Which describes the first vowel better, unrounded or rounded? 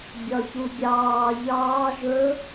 rounded